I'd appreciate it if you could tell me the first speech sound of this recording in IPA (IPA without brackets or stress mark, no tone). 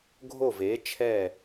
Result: ɡʱ